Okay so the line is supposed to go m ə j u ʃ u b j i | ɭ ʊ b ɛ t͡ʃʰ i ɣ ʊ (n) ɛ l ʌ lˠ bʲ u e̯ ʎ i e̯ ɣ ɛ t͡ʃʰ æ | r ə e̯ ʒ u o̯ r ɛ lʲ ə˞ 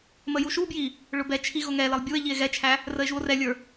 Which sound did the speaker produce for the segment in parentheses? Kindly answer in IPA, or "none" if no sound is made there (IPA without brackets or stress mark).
ŋ